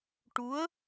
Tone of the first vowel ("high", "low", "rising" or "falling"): rising